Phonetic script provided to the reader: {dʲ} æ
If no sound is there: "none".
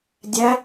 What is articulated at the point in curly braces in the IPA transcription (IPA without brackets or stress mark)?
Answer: dʲ